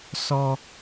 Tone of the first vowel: high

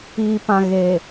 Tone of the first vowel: low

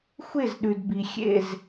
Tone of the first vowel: falling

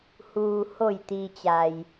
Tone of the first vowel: low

